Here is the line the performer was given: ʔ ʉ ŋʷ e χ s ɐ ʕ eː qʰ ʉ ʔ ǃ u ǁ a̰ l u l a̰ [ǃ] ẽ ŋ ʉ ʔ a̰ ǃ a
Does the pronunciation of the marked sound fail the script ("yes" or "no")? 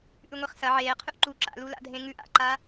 yes